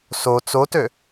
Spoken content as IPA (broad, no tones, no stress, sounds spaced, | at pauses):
s o t͡s o t ø